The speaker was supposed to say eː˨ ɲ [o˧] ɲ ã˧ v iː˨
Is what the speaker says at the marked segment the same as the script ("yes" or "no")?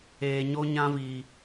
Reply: yes